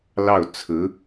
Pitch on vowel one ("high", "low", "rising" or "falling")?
falling